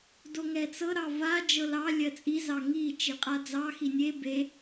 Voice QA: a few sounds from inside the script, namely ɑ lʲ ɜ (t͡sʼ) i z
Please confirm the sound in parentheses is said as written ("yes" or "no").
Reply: yes